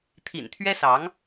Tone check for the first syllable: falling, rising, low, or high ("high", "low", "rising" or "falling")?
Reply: low